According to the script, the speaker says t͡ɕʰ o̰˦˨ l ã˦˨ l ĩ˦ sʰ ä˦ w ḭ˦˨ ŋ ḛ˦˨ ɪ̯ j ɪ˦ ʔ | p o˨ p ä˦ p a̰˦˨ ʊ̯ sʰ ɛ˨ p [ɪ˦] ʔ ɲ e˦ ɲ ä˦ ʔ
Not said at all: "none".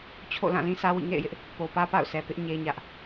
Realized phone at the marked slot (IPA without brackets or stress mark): ɪ˦